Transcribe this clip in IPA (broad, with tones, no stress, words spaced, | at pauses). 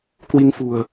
kwi˧ŋfṳ˨˩ə̯